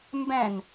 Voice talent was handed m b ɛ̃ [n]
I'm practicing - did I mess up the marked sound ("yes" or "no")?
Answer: no